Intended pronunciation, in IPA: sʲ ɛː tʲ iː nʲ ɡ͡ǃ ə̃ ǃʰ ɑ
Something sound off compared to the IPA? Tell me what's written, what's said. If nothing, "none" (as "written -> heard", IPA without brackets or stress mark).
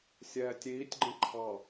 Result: nʲ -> tʲ